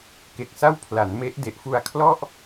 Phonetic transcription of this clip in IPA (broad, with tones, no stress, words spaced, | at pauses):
ke˨˩k̚sa˥˩w pʰla˩˦nme˦˥ʔ de˨˩ʔfu˧a̯kʰlɔ˥˩ʔ